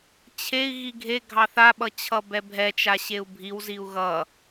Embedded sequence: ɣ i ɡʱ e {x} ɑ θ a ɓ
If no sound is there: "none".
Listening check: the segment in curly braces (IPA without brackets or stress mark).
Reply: ɡʱ